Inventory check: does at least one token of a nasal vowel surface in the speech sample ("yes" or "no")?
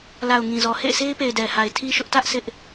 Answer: yes